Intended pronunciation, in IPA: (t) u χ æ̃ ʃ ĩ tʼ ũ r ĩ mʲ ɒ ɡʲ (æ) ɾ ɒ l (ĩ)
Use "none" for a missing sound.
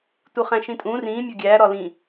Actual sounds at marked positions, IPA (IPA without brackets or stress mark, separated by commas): t, æ, ĩ